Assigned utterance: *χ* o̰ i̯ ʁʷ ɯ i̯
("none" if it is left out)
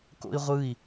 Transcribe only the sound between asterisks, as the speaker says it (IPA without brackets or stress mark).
k